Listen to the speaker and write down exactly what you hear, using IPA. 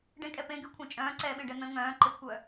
ɖẽkʼɛ pẽɡykʷʰẽ t͡ʃʼœ̃ːǀɛːɓẽɖɛ n̪ə̃ ŋœ̃ːǃekʷʰœ

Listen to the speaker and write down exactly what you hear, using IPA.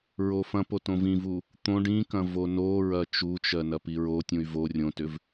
ɹofɐ̃po tõvĩvu | t̪õ ɖĩkɐ̃ vonoɹɐ t͡ʃut͡ʃɜ nɐpiɹotʲũy̯ vo rʲõtʏv

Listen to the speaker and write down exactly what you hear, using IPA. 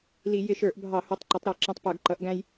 li˧˩˧ jɪ˧ʃə˞˧˩˧ʔbʱɑ˧˩˧ hu˩˧tˤǃʊ˩˧tˤɾə˞˧˩˧ ǁĩ˧tˤ pə˞˧˩˧ɡ ǃʌ˩˧ʔɡæ̃˧j

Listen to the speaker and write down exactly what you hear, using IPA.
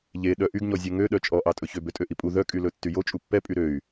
ʎe ɗœʔyɡɲɔ zʲɛŋøɗœ t͡ʃʼɔʔɑtʼɵçø bøtʼøʔipʼu ðœkʼylɵ tːyjo t͡ʃʼupːɛpʼy ɾøy̯

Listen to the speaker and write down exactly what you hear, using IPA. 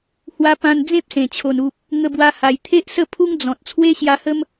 hwa˧pã˧n d͡zẽ˦p̚sẽ˨˩t͡ɕʰo˨˩n u˨p̚ | ŋə˧bwa˧ha˨˩j t̪ʰe˦ʔsə˥˧pʰu˦ŋ d͡zɔ̃˨t̚ t͡sʰwe˦ɕja˧hə˦m

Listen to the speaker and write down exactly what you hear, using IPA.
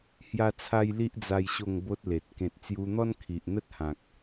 hja˦t͡sʰa˦jli˦ʔ d͡za˦jɕo˥˧ŋbo˦t̚le˨t̚ kẽ˨t̚t͡sju˧n̪ɔ˦n kʰi˨ʔn̪ə˦t̚hã˨k̚

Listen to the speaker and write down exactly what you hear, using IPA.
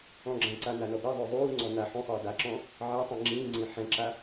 ɔ̃ɡ͡ǁãǀa nanɔbɛðˤʏː ðˤuːŋ͡ǀɔ na ħũsˤiː daǁɔ̃ | ʕatˤĩ ŋ͡ǁĩːŋ͡ǀĩ ħɛ̃ǁa

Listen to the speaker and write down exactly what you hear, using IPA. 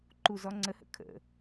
ǃuzɔŋ͡ǀəhə̰ kʰə̰

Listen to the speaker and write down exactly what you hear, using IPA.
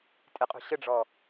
tʼɪqʼṳ ɕəɖ͡ʐɔ

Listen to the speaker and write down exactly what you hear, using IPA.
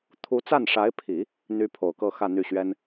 t̪ʰu˧˥t͡sa˥˩nʂa˧˥ɪ̯pʰi˨˩˦ | n̪y˥ pʰo˨˩ʊ̯kɤ˥˧ xä˥˧n̪y˥˩ ɕɥɛ˥n

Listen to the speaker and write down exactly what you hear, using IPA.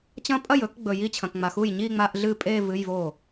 t͡ɕɐ̃˦˥ pʼɐ˥˩jɵ˧˥˧k ɡ͡bɵ˨ ji˥˩t͡ɕʰɐ̃˨kŋ͡ma˨xu˥˩j ɲi˥˧ŋ͡ma˧˥˧ʔɮɨ˥˩ pʼe˥˧ vɨ˧˥˧jvo˥˩

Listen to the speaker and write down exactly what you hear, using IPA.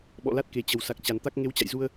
ɓɔ̰˧˨la˦˥t̚ ke˨˩t͡ɕə˨˩w sa˨˩k̚t͡ɕa˨˩nt̪a˦˥k̚ ŋe˨˦wt͡ɕa̰˧˨jzu˧ə̯

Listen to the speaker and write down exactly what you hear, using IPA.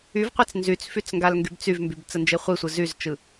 yvqʷet͡s nzyt͡sfyt͡s ŋɡalŋɡybt͡syvmbyb t͡sənd͡ʒeχʷisʷɯ zyzt͡ʃɯ

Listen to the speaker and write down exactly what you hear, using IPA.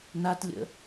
natlʲə̰

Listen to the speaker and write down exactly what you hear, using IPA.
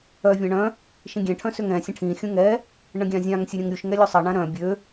œ vʲãɳœ̃ | ʃĩɡʲɛ̃ ʈʰœ̃søŋɛ̃ sʲə̃ʈʰĩ xʲũŋɛ | ɳə̃ɡʲãzʲãŋ sʲəɾʲə̃ŋɾʲuʃ ŋɛlʲusˤə ɳãɾœ̃ bʲø

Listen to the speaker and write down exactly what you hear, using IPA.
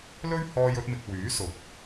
lɵ˥ɥhɔː˧jɵ˧t̚mɪ˨k̚ wyː˨˥sʊ˨˥k̚

